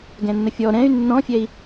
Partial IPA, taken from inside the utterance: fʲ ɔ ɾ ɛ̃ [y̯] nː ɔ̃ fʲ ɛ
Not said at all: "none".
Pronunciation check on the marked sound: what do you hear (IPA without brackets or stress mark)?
y̯